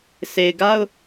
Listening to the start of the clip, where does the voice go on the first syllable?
low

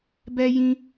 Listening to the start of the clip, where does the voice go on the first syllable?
high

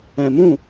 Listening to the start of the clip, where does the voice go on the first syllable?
low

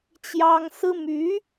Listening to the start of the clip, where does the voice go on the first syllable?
high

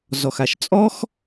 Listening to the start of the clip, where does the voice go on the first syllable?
low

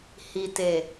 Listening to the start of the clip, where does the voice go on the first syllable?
low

